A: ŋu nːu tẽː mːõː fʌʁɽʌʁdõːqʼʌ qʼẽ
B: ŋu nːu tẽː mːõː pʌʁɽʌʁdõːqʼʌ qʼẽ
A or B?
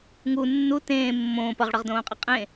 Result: B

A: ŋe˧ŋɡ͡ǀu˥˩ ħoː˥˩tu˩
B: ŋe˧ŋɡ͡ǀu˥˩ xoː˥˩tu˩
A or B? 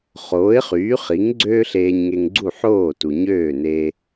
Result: A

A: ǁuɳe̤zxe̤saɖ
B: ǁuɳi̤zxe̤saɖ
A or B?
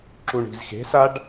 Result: B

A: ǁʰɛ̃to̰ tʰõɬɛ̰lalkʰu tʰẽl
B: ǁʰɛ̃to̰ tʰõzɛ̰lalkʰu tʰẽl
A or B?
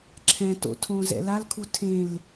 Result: B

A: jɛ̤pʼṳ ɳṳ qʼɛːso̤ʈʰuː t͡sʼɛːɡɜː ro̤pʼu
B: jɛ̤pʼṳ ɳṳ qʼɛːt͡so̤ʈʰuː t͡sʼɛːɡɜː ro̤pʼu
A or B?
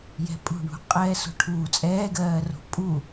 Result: A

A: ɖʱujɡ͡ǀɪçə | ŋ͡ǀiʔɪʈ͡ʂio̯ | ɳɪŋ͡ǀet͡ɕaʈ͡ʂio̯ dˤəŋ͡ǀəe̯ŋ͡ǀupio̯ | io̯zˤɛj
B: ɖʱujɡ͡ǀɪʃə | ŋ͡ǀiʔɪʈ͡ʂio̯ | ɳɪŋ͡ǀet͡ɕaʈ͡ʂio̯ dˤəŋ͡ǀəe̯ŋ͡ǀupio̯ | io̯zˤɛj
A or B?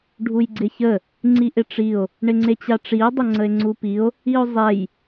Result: A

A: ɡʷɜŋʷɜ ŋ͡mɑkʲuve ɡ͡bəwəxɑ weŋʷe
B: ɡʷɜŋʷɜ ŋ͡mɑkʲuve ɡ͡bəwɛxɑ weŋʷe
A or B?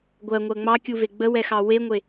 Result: B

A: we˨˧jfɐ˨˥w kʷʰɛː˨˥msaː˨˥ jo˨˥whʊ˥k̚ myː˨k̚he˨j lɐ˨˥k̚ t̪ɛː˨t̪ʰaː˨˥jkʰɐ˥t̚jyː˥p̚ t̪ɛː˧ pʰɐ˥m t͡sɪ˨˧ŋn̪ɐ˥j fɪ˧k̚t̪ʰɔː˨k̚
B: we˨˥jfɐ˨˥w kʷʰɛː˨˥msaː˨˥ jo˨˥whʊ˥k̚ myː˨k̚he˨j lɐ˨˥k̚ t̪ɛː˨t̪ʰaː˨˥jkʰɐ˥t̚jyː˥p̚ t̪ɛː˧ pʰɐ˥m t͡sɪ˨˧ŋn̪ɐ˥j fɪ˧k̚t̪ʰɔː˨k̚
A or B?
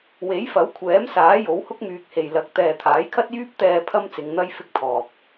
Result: B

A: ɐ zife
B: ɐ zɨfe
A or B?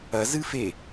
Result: B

